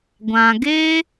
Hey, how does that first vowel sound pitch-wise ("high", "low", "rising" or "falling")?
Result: low